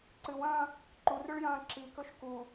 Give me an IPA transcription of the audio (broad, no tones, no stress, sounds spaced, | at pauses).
ǀ ɨ w ɐ̃ː | ǃ u r ʉ ɭ j ɐ̃ː ǁ i k ɵ ʃ k u